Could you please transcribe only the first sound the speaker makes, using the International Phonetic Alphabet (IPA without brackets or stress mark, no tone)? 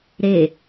ɾ